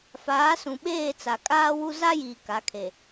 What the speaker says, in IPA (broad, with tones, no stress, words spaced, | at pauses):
faː˨˦sũ˨ɓeː˦˨ t͡sa˨kʼaː˦wu˦ za˦jiː˨ ka˨˦kʰe˨